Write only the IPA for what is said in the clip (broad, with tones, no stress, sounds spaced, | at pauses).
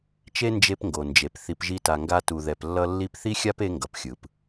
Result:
t͡ʃ e˦ n d͡ʒ e˧ p ŋ ɡ o˨ n d͡ʒ e˨ p θ i˨ p ʒ i˧ t a˨ ŋ ɡ a˧ t u˨ ð ɛ˨ p lː ʌ˧ lː i˧ p θ i˦ xʲ a˦ p e˧ ŋ ɡ ʌ˨ p xʲ ɯ˨ p